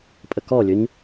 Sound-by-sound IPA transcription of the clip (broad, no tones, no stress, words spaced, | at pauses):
pʼəkɔlʲɵɲ